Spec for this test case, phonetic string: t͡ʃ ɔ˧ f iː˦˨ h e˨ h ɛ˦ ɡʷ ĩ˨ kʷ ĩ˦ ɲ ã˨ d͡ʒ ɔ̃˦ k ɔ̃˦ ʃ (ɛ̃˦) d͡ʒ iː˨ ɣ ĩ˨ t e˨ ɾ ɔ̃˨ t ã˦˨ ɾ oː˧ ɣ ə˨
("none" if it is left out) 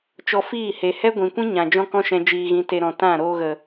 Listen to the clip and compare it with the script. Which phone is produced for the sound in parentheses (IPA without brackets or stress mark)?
ɛ̃˧